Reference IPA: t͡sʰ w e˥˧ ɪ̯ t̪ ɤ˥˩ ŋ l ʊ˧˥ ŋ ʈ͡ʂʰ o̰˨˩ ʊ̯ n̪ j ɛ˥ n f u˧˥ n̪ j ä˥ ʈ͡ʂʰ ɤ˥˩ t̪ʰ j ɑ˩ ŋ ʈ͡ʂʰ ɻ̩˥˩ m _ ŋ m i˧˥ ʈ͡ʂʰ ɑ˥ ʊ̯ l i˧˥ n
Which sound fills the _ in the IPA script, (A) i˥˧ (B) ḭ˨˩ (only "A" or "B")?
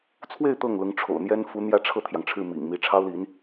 B